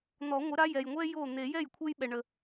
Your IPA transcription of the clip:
n̪ ɔ˨˩˦ ŋʷ ɘ˩˥ ɾ a˩˧˩ j ɛ˩ j ŋʷ ɛ˦ j o˥˩ n̪ e˨˩˦ j ɛ˥˩ j kʷʰ e˦ j ɓ ɛ˩ ɳ ə˩

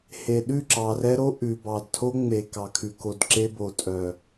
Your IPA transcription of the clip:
h e˨ ɗ ʉ˦˨ ǁ ɑ˨ r ɛ˦ ɾ o˦ ʔ ʉ˨ b ɑ˨ d tʰ o˦ ŋ͡m e˨ k ɑ˨ kʰ ʉ˨ k o˨ d ǁ e˦ b o˨ tʼ œ˨

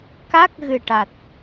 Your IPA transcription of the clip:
k a˦˥ k̚ ɣ ɨ˨˩ ʈ a˨˩ t̚

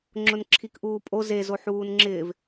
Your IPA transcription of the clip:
ŋ͡ǁ ʊ n ǁʰ i k ʔ uː pʼ o z e z o ħ uː n ŋ͡ǁ ɪː v

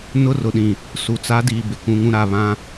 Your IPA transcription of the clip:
n ʊ˦ r ʊ˨ ɗ ĩ˨ | s u˨ t͡s a˨˦ d iː˨ b ɪ˨ k ũ˨˦ ŋ ũ˦ ɾ a˦˨ β ã˦

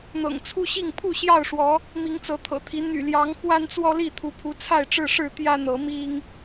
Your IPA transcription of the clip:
n̪ ɤ̰˨˩ ŋ t͡sʰ u˦ ɕ i˥˨ ŋ pʰ u˥˨ ɕ j ɑ˥˨ ʊ̯ ʂ w ɔ˨˦ | m i˨˦ ŋ t͡s ɤ˨˦ t̪ʰ ɤ̰˨˩ t̪ʰ i˨˦ n̪ y̰˨˩ l j ɑ˨˦ ŋ x w a˦ n t͡s w ɔ˦ l i˥˨ t̪ʰ u˨˦ pʰ u˨˦ t͡sʰ a˥˨ ɪ̯ ʈ͡ʂ ɻ̩˥˨ ʂ ɻ̩˥˨ t̪ j ä˦ n̪ ɤ˨˦ m i˦ ŋ

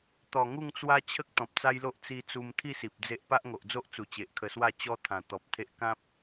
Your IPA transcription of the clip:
t̪ ɔ˨˩ ŋ u˥˧ ŋ t͡s w a˦ t͡ɕʰ ə˦ k̚ t̪ ɔ̃˨ p̚ t͡s a˦ j l o˦ ʔ t͡s i˧ t͡s u˧ m t̪ʰ i˥˧ s i˨ p̚ d͡z e˦ ʔ p a˦ ʔ ŋ o˨ ʔ d͡z o˦ ʔ t͡s u˨˩ t͡ɕ e˨ ʔ kʰ ə˧ s w a˥˧ t͡ɕ ɔ˦ t̪ʰ ã˨˩ t̪ ɔ˨ p̚ t̪ʰ e˦ ʔ k ã˦ p̚

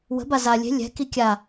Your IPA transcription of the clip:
w ə̤ b a z a lʲ e̤ lʲ ɛ̤ k i kʲ a

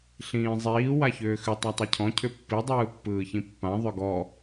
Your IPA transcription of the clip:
ɬ ĩː zˤ iː w a ç ʏː x ʏ tˤ a tˤ i cʰ ɔ̃ cʰ ʏ pː i dˤ ɯː pː ɯː ç ĩ pː ã ðˤ ʏ ɡ ɔ

